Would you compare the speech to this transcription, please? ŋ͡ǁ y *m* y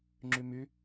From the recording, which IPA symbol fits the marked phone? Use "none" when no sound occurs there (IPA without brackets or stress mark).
m